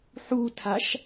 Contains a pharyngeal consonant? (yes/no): yes